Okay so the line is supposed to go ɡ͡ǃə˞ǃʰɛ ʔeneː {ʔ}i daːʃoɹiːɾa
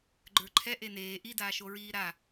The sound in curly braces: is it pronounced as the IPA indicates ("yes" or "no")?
yes